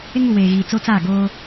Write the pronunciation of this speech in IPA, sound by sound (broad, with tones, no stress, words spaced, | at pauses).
ɪ˦ŋu˨weː˨ɣiː˨ t͡so˦t͡sa˦˨ɡoː˦